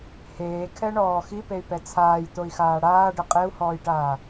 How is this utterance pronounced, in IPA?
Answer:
h eː kʰ ɛ ɳ ɔː x i p e y̯ p ɛ t͡sʰ aː j t̪ o i̯ x aː ɽ aː ɖ ɪ qʼ e u̯ h ɔː j ʈ aː

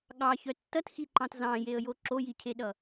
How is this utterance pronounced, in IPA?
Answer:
ɠ ɑ ç œ tː ʌ t x i ǃ ɑ̃ t z ɑ̃ j e ə̯ j o ǁ o j i cʰ e ɗ ʌ

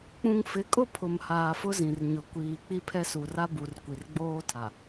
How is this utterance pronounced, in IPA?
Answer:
k͡p ũ˨ ŋ f ɪ˨˦ kʼ ʊ˦˨ pʰ ʊ˨ m h aː˨ f ʊ˦ z ĩ˨ r ɲ ʊ˨ kʷ iː˨ k͡p i˦ pʰ ɛ˦ s u˨ r a˦ b u˨ r kʷ i˨ r ɡ͡b oː˦ tʰ a˨

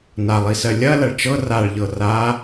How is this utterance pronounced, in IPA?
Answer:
n a lˠ i s ɜ lʲ ɐ l ɐ ɭ t͡ʃ ɤ r a ɭ ʎ ɤ r a

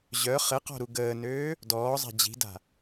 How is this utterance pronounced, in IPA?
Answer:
ʑ œ χ ɘ q ɔ̤ ɾ u ɡ əː n øː | d ɔː zˤ a̤ d͡ʑ i̤ d a̤

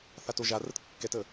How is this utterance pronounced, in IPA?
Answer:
θ a t o ʒ a r ə t kː ɛ t ə

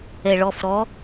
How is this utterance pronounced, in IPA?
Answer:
ɛ ɭ ɔ f ɾ ɔ

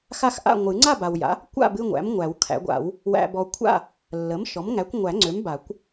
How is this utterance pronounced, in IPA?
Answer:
x a˥˨ x ʔ a̰˥˨ ŋʷ ɨ˨˩˦ ŋ͡ǀ a˥˨ b a˨ w j a̰˩˥ | kʷ a̰˥˨ b ɨ˥˨ ŋʷ æ̰˩˥ m ŋʷ æ˨˩˦ w kʰ æ̰˨˩˦ ɡʷ a̰˨˩˦ w | w æ̰˨ b ɔ˨ kʷʰ a̰˥˨ | lː ə˩˥ m ʃ ɔ˩˥ m ŋ æ˩˥ kʷ ŋʷ æ˨˩˦ ŋ͡ǀ ø˩˥ m b a˨˩˦ kʷ

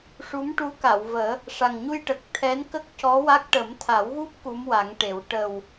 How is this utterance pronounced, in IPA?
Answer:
ʂ u˧˥ m ʈ u˧˥ k a˨˩˨ w v əː˨˩˦ | ʂ a˨˩ ŋ ɲ u˧ j ʈ ə˨˩ k̚ t̪ʰ ɛ˧˥ n k ə˦˥ k̚ c ɔ˧˥ w a˦˥ k̚ ʈ ə˨˩˦ m t̪ʰ a˨˩˦ w ɣ u˦˥ p̚ k u˧˥ m w a˨˩˦ ŋ ʈ e˨˩˦ w ʈ ə˨˩ w

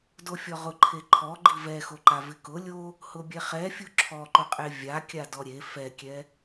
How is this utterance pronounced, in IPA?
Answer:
d o fʲ ɔ ʁ ʊ ǃʰ e ǃʰ ɔ ɡ͡ǃ i v ɛ x o ǃ a v ɪ k ʊ lʲ o | h ʊ bʲ ɛ χ ɛ fʲ u ǁʰ ɔ ǃ ʊ qʼ e vʲ a kʲ a d ɔ ɾʲ e f ɛ kʲ ɛ

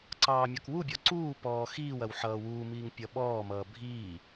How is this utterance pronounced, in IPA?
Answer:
ǀ ɑː mʲ ɔ k w u bʲ ɔ ǀ uː p ɔː x iː w ɐ w ħ ʌː w uː m iː ŋ pʲ ʌ ɓ ɔː m ʌː bʱ iː

